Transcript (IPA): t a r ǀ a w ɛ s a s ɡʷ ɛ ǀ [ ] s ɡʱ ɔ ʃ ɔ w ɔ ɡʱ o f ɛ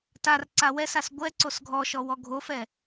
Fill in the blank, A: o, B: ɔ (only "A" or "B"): A